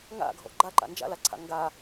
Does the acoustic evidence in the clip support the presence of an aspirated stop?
yes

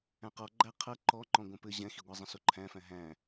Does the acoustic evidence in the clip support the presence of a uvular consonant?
yes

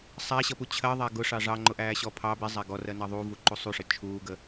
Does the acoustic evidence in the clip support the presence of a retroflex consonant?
yes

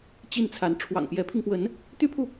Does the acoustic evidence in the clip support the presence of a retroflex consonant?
yes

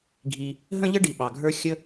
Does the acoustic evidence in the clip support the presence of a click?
no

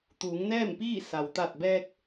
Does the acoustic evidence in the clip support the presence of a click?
no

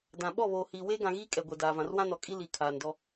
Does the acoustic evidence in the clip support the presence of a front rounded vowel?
no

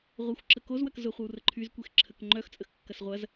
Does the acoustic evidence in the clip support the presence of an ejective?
yes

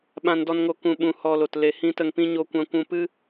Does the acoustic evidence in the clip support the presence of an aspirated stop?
no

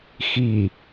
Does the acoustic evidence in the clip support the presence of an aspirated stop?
no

